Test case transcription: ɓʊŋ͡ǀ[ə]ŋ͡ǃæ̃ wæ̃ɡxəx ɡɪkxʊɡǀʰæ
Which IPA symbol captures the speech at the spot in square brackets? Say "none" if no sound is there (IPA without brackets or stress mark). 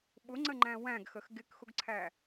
ə